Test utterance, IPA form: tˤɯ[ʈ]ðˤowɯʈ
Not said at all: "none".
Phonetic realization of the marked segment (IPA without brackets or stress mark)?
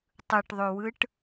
ʈ